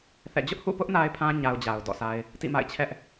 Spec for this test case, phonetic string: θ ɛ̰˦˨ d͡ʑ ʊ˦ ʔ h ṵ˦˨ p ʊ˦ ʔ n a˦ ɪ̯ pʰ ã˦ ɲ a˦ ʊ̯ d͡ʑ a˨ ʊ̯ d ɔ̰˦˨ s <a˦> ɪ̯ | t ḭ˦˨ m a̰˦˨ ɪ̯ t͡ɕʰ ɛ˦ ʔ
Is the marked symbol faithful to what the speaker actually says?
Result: yes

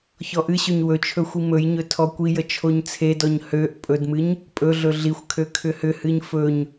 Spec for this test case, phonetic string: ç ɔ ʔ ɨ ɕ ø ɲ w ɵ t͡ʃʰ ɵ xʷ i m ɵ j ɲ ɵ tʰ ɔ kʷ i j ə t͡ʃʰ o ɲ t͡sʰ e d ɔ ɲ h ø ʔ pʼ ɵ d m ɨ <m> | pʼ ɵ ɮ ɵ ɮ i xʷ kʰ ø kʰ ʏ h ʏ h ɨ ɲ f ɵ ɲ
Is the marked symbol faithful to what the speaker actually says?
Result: no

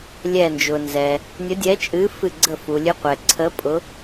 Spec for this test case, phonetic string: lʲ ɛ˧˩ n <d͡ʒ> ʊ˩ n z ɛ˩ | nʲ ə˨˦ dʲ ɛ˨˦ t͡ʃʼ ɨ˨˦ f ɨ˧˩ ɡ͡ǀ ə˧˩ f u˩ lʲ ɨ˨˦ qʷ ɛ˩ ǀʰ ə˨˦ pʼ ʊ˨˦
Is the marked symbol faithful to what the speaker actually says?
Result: yes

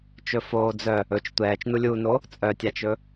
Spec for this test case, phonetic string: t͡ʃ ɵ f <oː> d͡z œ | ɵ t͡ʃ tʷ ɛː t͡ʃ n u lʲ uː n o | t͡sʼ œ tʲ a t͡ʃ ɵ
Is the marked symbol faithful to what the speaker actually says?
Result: yes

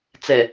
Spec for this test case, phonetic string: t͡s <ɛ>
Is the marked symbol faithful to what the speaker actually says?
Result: yes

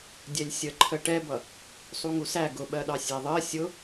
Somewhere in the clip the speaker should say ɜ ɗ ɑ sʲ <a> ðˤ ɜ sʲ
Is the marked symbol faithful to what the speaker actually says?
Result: no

